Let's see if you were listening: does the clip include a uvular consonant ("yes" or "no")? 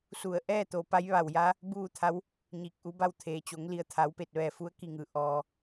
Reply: no